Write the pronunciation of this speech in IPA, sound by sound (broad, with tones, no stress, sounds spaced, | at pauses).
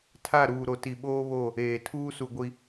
tʰ a˦˨ ɾ uː˨ ɾ o˨ t i˨ ɓ oː˦ β o˦˨ | eː˨ tʰ uː˦ s u˨ ɡʷ i˨